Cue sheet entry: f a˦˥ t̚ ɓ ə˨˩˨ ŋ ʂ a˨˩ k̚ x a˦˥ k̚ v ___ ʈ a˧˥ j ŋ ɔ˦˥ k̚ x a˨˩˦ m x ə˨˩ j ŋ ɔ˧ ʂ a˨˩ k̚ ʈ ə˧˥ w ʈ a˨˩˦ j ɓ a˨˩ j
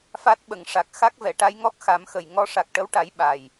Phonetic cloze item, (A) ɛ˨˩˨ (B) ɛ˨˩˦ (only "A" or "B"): A